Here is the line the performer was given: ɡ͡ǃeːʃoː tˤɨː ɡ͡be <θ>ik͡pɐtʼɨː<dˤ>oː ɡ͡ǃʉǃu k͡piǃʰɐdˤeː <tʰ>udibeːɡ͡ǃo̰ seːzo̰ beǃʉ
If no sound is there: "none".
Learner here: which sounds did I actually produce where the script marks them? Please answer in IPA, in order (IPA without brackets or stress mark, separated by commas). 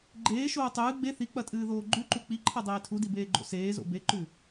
θ, ð, tʰ